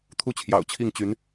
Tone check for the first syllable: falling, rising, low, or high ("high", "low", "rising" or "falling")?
falling